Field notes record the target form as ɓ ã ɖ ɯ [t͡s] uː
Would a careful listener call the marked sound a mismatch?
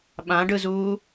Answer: yes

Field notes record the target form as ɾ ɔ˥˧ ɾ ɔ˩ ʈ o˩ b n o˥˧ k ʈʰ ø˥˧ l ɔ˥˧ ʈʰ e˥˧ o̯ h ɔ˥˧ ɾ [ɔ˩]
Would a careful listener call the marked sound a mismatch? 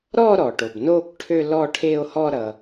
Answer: yes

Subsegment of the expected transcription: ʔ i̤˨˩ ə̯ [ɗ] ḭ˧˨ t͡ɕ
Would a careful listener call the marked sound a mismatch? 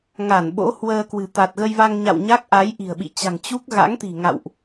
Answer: yes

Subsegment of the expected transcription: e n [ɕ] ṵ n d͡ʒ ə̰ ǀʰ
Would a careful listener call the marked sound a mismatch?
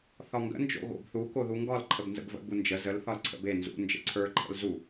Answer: yes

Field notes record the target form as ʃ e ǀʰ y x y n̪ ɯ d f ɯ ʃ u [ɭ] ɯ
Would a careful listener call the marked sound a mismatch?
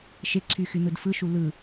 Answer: yes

